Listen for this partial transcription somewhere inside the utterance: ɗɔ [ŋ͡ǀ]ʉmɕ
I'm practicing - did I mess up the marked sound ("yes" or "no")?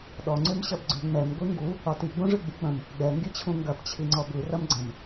no